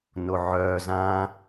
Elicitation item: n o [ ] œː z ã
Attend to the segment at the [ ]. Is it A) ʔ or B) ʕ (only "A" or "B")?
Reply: B